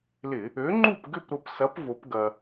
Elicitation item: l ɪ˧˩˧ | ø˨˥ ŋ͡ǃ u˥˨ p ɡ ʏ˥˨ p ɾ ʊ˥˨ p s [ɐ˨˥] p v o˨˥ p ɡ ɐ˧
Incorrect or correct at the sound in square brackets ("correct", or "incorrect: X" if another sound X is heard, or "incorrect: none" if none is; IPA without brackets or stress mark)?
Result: correct